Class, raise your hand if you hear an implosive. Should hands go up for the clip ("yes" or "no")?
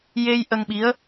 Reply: yes